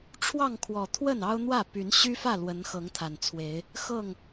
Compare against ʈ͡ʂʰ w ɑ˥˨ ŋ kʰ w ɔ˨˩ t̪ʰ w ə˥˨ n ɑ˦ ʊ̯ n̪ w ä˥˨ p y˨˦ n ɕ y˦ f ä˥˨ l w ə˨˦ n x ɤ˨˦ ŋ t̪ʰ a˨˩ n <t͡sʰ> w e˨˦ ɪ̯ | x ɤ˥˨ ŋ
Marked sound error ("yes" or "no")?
no